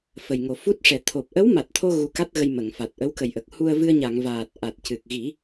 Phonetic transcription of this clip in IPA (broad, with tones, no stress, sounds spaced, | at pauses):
f ə˨˩ j ŋ o˨˩ f u˦˥ t̚ ʂ ɛ˨˩ t̪ʰ o˨˩ p̚ ʔ ə˧˥ w m a˨˩ t̚ t̪ʰ o˧ ɣ u˧ k a˦˥ t̚ ɣ ə˧ j m ə˨˩˨ ŋ f a˨˩ t̚ ʔ ə˧˥ w k ə˨˩ j ʔ ə˨˩ k̚ h u˧ ə̯ v ɨ˧ ə̯ ɲ a˨˩˨ ŋ v aː˨˩ t̚ ʔ a˨˩ t̚ c ɨ˨˩ k̚ ɣ i˨˩˦